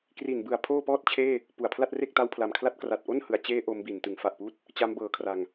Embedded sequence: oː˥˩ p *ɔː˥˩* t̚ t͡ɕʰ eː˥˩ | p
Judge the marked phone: correct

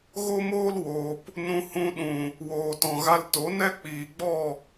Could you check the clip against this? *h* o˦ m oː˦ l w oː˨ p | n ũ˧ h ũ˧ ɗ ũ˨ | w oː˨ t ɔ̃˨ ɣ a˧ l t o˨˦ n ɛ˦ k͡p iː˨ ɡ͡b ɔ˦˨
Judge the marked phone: incorrect: ɣ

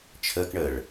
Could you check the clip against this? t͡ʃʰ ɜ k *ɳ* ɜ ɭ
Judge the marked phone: correct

